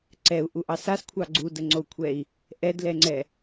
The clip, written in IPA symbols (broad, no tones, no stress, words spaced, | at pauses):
ǀɛu̯ʔuʔɑ saskʷʰɑ ɡ͡ǀudəŋ͡ǀou̯kʷʰɛi̯ | ʔɛdlɛŋ͡ǀɛ